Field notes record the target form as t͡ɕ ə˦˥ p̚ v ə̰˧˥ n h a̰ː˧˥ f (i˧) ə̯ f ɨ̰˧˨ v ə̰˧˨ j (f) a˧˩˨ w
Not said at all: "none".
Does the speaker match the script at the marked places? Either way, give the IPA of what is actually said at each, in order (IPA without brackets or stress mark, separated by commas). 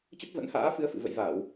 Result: ɨ˧, v